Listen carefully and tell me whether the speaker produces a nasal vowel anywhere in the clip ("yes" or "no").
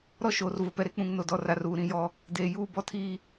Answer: yes